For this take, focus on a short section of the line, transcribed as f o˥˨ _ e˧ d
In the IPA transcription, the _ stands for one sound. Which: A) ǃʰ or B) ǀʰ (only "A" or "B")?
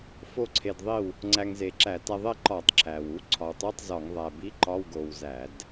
B